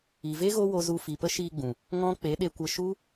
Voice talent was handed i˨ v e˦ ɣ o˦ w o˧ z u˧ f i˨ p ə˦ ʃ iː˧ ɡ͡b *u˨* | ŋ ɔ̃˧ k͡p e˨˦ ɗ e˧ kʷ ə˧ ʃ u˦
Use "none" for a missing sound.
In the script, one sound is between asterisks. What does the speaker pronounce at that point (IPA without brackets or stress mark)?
ũ˨